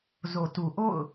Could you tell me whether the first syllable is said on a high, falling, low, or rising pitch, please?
low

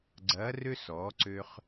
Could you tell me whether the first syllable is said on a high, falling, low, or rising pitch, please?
rising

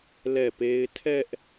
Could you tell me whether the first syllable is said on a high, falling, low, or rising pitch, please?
falling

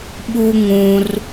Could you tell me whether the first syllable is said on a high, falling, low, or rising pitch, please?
high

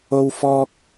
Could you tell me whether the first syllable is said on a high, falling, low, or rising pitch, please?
high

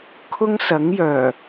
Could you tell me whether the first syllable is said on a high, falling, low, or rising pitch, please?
high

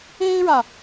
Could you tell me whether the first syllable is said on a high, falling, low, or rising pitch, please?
high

